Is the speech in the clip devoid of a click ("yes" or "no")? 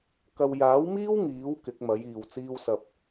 yes